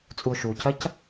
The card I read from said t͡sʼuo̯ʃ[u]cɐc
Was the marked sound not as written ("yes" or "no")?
no